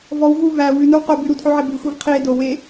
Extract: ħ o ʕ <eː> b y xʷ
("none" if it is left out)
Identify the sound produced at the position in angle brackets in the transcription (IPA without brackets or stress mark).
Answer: e